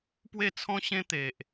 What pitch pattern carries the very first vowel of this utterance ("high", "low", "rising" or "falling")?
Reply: falling